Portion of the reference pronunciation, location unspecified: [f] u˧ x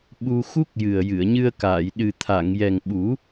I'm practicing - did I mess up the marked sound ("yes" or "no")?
yes